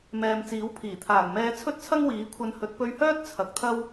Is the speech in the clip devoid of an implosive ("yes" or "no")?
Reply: yes